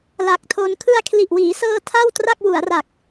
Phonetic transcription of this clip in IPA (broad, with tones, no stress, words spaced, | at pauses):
la˨˩k̚tʰo˧n kʰɯ˧a̯kʰli˨˩ʔwiː˩˦sɤː˧ tʰa˥˩wtra˥˩k̚ wu˩˦a̯ra˨˩k̚